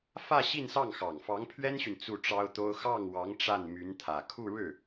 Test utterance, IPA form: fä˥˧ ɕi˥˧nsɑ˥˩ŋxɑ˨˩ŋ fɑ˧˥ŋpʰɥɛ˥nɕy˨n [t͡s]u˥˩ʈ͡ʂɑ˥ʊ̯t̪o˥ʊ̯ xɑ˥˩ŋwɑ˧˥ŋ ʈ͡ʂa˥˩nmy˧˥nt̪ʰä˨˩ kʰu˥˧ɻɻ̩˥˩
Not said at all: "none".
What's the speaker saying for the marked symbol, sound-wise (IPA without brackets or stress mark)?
t͡s